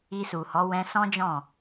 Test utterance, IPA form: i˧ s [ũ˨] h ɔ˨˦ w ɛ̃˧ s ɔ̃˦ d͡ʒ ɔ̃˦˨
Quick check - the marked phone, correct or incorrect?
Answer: incorrect